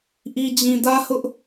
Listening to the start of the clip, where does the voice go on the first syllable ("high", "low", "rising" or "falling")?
low